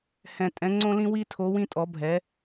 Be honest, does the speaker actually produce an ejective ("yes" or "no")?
yes